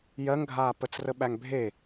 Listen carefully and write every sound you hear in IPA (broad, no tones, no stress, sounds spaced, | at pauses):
j ɜ ŋ ɡʱ aː p ə t͡s r ə ɓ æ ŋ bʱ e